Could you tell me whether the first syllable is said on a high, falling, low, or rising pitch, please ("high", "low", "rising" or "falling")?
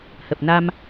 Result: low